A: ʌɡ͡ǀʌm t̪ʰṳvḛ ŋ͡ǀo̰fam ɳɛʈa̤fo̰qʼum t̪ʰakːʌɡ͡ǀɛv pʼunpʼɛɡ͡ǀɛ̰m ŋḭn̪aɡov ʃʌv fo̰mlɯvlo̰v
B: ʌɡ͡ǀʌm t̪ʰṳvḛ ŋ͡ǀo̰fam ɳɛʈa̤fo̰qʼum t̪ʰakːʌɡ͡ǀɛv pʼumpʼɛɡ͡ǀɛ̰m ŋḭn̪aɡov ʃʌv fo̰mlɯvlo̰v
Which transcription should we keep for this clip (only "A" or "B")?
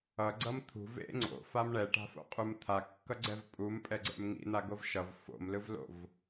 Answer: B